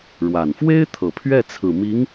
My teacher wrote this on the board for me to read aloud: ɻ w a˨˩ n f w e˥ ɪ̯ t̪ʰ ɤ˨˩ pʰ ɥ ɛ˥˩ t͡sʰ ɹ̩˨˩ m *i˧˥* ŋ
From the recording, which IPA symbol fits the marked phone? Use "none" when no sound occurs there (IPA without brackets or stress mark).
i˧˥